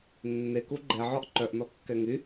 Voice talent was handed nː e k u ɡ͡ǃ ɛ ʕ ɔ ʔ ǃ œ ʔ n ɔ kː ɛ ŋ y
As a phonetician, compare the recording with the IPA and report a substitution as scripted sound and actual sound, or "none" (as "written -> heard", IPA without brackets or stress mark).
none